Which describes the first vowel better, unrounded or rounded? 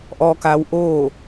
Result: rounded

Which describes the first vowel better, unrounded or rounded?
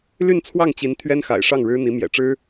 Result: rounded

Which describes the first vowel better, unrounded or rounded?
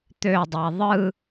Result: rounded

